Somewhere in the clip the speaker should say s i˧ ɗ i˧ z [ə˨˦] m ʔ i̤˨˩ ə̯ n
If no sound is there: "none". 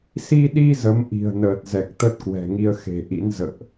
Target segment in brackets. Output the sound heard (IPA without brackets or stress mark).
ə˨˦